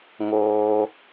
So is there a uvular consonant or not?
no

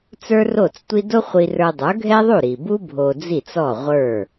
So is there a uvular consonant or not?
yes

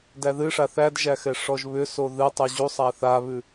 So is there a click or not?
no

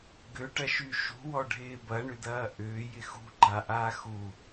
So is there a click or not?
yes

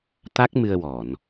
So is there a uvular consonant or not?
no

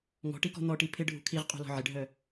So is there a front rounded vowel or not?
yes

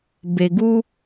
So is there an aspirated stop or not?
no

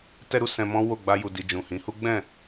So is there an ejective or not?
no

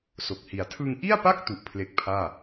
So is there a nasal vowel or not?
no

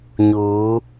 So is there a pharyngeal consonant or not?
no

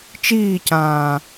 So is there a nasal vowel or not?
yes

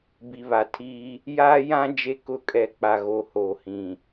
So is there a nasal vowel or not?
yes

